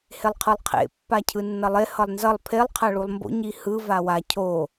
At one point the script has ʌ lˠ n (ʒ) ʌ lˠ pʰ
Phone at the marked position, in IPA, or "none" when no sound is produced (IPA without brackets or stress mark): z